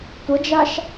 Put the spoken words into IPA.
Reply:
tʷ ə d͡ʒ a ʃ

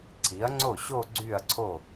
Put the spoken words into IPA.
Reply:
ǀʰ i˩˥ ɐ̯ ŋ͡ǀ o˥˩ ɕ o˥˧ ɡ͡ǀ y˥˩ ɐ̯ ǀʰ o˥˩

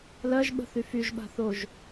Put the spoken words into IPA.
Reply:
l ɜ ʒ ɓ ə̤ θ y f y ʒ ɓ a̤ θ o ʒ

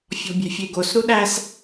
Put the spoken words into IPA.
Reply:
fʲ ɔ̤ bʲ ɛ̤ fʲ e ɡ o s ɾ u ɗ æ s

